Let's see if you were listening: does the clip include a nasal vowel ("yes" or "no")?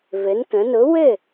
yes